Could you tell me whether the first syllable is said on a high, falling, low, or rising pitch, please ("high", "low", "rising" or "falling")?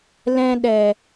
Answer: high